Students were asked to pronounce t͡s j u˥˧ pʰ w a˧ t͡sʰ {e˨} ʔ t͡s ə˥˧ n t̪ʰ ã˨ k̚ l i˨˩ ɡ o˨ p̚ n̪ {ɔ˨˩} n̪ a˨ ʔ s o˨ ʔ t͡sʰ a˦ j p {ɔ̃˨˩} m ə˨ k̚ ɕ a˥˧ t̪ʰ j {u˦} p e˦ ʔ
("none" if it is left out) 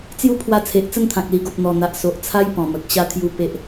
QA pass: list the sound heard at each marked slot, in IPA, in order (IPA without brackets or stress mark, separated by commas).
e˨, ɔ˨˩, ɔ̃˨˩, u˦